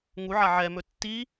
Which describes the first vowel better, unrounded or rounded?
rounded